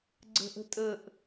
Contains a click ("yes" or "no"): yes